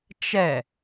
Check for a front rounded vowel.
absent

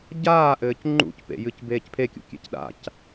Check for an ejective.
absent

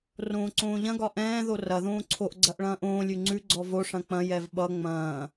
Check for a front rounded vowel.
absent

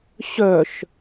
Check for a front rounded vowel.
present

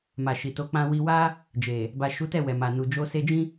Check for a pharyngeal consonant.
absent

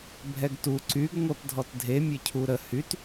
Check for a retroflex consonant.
absent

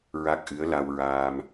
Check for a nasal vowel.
absent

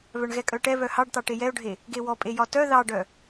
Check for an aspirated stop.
absent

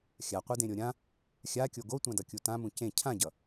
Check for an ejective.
absent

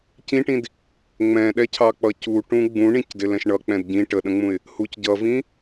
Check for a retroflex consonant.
present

